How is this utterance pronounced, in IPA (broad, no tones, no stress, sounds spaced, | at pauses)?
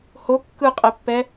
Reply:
h o kː ɯ qʼ ɛ pː ɛ